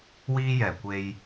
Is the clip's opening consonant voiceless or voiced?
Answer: voiced